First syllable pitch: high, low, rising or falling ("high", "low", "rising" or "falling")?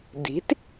rising